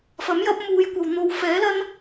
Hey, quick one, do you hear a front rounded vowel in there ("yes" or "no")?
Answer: no